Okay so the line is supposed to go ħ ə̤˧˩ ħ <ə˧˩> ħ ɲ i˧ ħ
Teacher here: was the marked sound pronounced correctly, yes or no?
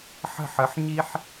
no